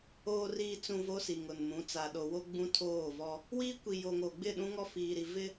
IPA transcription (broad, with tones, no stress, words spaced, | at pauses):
oː˨riː˨t͡sũ˨ vo˦si˨ŋʊ˨nmũ˨˦ t͡sa˨ɗo˨wo˦ ɡ͡bũ˦tʰoː˦˨vɔ˦ | wiː˦kʷi˨ jo˨ŋo˨ɡ͡bɪ˦˨ ɗũ˦ŋɔ˦fiː˨ɾi˨ vɪ˦